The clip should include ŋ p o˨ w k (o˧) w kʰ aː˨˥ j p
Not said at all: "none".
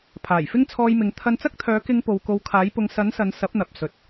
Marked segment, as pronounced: o˨˧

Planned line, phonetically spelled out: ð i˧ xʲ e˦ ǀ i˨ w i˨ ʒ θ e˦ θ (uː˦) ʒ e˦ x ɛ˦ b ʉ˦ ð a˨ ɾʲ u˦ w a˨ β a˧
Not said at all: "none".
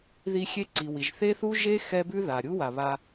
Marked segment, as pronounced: u˦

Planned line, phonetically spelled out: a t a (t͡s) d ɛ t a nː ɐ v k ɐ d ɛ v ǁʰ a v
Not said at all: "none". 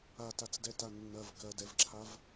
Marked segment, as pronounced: t͡s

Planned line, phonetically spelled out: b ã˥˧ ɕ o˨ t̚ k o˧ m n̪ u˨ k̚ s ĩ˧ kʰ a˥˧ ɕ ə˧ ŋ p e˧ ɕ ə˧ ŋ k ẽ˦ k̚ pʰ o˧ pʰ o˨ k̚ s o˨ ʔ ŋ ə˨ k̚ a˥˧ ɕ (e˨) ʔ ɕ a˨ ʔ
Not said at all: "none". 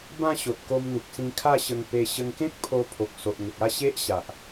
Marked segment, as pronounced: e˦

